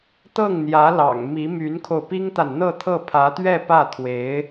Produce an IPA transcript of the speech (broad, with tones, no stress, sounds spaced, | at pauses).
t̪ ɤ˥˩ ŋ n̪ j ä˧˥ l ɑ̰˨˩ ŋ m i˧˥ m y˧˥ n kʰ o˧ ʊ̯ p i˥ ŋ t̪ a˨ n n̪ ɤ˥˧ t̪ʰ ɤ˥˩ pʰ ä˧˥ t̪ ɥ ɛ˥˧ p ä˥˩ t̪ʰ w e˧˥ ɪ̯